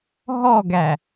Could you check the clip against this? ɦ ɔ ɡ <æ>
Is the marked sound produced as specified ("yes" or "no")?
yes